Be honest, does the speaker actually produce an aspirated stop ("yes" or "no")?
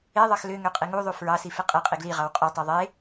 no